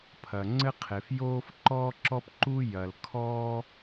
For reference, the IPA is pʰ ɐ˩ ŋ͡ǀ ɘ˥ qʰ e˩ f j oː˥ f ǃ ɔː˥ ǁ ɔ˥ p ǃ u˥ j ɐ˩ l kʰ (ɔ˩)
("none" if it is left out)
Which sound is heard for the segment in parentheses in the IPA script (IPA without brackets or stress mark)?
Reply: ɔ˥